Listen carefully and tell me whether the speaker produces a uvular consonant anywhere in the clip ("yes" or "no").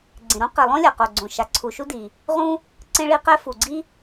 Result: yes